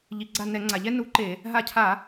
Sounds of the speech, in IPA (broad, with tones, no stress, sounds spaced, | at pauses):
ʎ i˩ ɡ͡ǀ a˧˩ n ɛ˧˩˧ ŋ͡ǀ a˩ ʎ ɛ˦ n u˨˥ ǃ e˧˩˧ | ɦ a˧˩ cʰ a˧˩˧